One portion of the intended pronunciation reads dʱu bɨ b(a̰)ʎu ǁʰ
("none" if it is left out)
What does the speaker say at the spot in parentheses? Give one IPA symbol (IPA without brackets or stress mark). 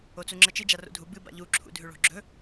a̰